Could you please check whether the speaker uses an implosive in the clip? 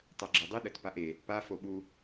yes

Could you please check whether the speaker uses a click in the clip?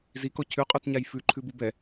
yes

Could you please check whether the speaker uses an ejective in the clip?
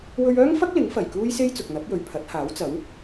no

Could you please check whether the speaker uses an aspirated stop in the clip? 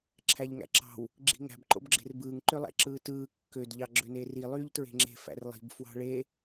yes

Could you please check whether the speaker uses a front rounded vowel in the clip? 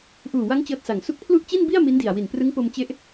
no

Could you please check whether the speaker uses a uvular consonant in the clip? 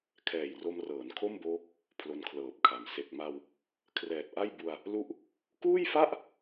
no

